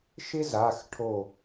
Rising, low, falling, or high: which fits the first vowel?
high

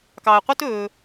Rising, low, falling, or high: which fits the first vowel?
low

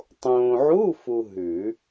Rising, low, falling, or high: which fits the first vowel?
low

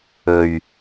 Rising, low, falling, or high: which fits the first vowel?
low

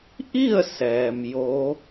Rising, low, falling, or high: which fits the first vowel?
falling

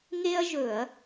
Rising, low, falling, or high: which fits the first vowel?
high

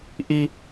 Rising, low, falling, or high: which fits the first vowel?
high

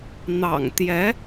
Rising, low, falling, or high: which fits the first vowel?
low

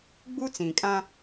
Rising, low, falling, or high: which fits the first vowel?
high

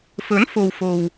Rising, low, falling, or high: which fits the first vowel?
rising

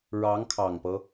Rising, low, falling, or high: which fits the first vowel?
rising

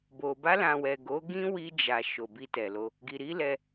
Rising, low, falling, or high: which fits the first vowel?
low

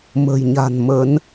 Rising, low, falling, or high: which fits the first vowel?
low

